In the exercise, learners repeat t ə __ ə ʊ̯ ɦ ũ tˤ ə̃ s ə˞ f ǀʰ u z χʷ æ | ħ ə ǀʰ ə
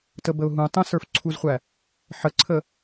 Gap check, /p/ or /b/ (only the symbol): b